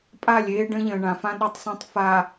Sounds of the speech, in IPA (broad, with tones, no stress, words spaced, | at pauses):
pʼa˦˨lʲeː˦ɖə̃˦ʎə̃ː˨ ɳã˨fã˦ ɗo˦tˤsˤə̃ː˦tˤ fa˨